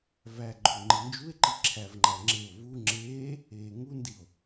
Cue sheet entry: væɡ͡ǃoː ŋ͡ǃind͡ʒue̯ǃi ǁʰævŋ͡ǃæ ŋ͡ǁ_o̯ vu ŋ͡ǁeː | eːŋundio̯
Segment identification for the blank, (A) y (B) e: B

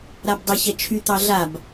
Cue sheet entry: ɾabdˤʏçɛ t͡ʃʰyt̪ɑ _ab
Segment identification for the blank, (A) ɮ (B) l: A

